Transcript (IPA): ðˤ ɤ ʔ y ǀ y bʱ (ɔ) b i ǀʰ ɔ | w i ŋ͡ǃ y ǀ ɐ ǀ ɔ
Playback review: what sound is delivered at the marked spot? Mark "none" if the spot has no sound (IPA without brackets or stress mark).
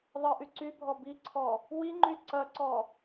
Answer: ɔ